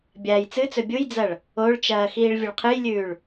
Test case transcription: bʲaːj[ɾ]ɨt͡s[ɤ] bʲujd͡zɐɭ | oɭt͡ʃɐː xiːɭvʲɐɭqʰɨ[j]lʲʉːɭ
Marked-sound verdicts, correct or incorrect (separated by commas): incorrect, incorrect, correct